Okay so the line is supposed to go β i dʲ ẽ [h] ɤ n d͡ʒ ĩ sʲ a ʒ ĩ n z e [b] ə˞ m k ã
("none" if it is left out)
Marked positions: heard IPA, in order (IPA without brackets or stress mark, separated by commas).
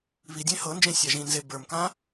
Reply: h, b